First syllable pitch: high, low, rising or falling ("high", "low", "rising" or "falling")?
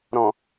low